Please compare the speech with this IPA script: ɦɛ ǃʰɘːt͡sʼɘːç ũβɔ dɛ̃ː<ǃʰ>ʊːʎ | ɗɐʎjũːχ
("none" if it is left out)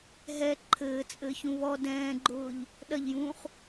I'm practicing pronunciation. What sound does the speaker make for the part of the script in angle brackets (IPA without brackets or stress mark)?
ɡ͡ǃ